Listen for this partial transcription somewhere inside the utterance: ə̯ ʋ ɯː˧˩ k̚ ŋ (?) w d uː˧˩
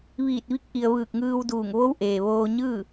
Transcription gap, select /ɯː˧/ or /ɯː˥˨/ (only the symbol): ɯː˧